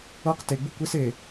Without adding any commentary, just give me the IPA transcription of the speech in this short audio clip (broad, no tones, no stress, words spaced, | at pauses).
ɤq teɡ͡bu kʷes e